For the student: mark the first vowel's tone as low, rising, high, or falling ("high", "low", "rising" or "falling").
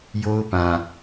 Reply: high